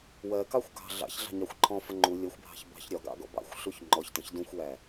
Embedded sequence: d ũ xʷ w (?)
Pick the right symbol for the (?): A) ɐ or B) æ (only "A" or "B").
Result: B